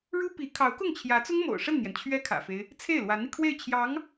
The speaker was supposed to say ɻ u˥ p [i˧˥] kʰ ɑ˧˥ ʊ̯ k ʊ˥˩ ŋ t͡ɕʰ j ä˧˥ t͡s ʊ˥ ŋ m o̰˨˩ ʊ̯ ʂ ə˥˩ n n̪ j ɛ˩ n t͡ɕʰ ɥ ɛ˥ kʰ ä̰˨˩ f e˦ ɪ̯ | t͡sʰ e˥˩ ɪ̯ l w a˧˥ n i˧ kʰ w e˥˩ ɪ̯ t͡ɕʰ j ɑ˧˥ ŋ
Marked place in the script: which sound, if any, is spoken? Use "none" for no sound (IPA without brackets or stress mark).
i˧˥